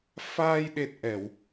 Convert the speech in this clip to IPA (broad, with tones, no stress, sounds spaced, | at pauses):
f aː˧ j ɗ e˨˩ t̚ ʔ ɛ˧˩˨ w